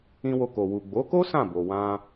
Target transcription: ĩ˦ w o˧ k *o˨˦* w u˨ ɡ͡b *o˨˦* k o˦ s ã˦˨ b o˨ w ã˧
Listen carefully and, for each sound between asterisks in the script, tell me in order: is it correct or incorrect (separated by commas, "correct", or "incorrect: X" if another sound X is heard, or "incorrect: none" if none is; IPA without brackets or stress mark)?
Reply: incorrect: o˨, correct